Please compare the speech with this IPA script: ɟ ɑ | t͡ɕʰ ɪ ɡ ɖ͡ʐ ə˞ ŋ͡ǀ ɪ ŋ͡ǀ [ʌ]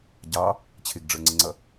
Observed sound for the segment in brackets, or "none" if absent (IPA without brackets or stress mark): ʌ